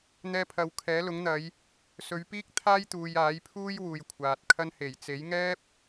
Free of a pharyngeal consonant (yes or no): yes